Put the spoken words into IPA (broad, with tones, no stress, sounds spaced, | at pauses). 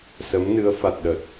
s ə˨˦ m n ɨ˨˦ ə̯ f a˨˩ t̚ ɗ ə˨˩ t̚